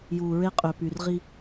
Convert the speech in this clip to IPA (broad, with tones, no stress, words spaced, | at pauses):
juː˨ɹe˦ qʼø˨ py˨r ʁi˦